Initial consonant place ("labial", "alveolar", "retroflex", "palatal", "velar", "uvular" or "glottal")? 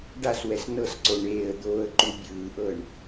retroflex